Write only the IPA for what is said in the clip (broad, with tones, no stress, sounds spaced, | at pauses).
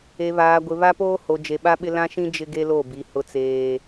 e˨ β aː˨ ɡʷ ɪ˨ β a˦ p oː˦ h o˨ d͡ʒ e˨ ɓ a˦ ɓ ɪ˦ l ã˦ ʃ ĩ˦ d͡ʒ ɪ˦ ɡ e˦ l o˦˨ b i˨ h ʊ˨ t͡s eː˨